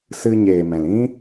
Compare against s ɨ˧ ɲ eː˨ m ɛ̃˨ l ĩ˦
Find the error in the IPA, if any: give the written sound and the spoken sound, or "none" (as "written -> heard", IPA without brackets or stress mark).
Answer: none